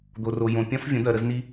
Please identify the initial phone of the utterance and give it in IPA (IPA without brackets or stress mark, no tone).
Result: d̪